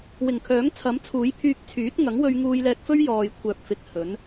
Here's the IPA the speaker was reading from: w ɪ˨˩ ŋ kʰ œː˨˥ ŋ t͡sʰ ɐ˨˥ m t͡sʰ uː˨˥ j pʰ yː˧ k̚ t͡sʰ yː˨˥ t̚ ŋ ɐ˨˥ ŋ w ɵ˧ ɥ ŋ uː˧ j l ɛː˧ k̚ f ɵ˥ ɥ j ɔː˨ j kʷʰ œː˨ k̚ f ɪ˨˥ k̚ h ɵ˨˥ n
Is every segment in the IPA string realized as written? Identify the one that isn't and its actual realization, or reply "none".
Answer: none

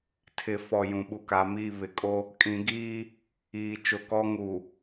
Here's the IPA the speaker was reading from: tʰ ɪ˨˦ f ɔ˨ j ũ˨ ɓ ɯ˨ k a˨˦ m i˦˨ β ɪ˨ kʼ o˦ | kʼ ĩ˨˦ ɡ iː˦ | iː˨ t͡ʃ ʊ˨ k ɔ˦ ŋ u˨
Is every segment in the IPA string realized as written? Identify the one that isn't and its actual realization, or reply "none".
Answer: ɯ˨ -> u˨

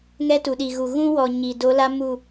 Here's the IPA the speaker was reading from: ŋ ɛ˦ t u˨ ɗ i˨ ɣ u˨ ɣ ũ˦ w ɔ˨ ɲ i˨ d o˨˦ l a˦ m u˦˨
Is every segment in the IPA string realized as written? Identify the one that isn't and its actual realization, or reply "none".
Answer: none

